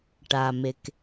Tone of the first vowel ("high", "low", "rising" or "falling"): low